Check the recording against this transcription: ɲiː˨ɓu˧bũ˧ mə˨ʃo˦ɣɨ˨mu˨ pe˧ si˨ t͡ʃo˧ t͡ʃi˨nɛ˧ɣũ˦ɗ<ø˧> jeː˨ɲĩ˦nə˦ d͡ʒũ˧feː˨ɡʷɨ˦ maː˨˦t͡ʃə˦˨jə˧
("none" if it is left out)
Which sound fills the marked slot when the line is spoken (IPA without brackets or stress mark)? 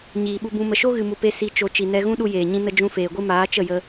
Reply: u˧